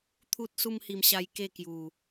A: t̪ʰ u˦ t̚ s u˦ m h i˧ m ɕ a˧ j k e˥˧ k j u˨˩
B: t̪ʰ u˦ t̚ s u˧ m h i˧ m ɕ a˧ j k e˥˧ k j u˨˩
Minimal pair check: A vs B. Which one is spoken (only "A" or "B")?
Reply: A